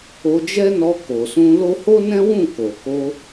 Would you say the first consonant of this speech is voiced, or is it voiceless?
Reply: voiced